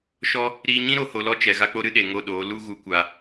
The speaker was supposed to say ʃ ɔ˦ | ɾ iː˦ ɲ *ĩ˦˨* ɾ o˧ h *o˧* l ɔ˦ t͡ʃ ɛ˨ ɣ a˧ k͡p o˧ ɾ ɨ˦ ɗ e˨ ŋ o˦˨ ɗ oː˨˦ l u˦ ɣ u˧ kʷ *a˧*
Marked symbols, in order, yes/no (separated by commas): no, yes, yes